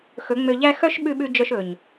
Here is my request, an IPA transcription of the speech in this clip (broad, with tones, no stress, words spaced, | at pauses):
xɵ˨˦ ŋ͡mø˧ʎæ˦ xœ˦ʃɓʉ˧ɓʉ˧ d͡ʒœ˧ʃɵ˨ɲ